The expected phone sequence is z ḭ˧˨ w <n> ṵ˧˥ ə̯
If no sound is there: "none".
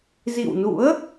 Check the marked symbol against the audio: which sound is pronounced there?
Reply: n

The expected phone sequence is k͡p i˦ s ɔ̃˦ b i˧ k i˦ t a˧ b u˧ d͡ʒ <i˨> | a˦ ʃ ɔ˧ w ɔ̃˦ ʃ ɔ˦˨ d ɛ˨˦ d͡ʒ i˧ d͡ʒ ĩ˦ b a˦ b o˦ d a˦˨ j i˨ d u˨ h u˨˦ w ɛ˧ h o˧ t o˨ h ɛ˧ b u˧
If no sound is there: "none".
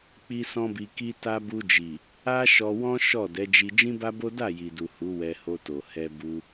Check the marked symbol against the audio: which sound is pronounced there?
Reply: i˨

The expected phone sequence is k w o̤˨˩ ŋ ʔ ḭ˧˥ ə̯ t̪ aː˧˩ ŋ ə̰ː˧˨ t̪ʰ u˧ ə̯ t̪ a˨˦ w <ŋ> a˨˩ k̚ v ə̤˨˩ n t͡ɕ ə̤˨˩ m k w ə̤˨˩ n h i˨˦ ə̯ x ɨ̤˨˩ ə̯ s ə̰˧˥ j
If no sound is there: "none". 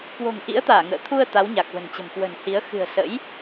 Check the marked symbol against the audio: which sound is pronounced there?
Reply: ɲ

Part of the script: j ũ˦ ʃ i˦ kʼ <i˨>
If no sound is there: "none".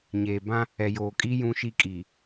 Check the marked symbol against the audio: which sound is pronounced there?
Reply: i˨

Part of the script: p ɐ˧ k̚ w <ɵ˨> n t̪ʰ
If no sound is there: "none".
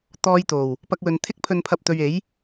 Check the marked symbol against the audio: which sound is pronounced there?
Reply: ɵ˨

